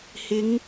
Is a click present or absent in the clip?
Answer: absent